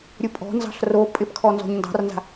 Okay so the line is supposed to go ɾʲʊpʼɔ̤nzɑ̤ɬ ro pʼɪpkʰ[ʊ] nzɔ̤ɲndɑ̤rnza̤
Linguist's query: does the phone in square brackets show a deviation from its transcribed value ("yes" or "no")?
yes